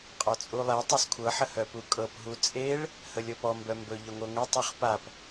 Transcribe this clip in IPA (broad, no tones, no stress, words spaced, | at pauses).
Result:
qʼɔt͡sʼulˠe tˤɤskʷʰɤ ħəhœpukʼɤp ɦut͡sʼeɭ | həlʲɤpɔ mbœmbɵ ʎœŋʷɤŋʷe tˤœχpap